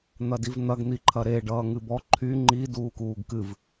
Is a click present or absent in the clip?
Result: present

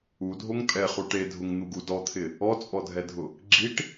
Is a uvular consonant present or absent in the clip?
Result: present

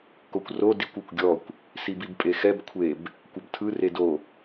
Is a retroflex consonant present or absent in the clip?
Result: absent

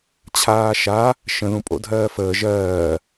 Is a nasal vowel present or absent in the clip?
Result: present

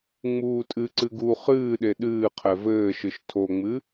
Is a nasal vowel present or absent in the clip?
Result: absent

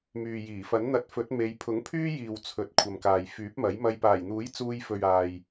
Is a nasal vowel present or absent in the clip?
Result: absent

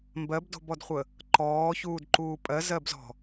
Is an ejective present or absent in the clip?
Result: present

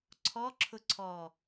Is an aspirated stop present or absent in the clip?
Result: present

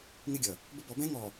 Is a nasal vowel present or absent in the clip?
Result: present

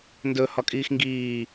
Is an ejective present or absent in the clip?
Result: present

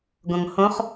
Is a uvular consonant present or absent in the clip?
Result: present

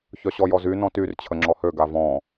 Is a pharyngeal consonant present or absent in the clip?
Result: absent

